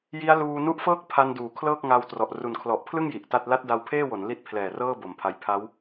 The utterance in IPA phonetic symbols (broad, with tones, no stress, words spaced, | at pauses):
ji˦˥a̯ luː˧nu˦˥ʔfɤː˥˩k̚ pʰa˧nduː˩˦ kʰlɤː˥˩k̚ŋaː˧wtrɔ˨˩ʔ ru˨˩nkʰlɔ˨˩ʔpʰlɯ˥˩ŋ ji˨˩ʔ ta˥˩t̚ la˦˥t̚da˧wpʰeː˥˩wo˩˦n li˥˩t̚pʰlɛː˨˩rɤː˥˩ bo˨˩mpʰa˧j pʰa˦˥w